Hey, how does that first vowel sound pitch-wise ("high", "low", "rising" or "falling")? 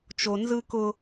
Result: low